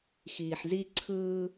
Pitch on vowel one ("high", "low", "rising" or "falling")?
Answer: low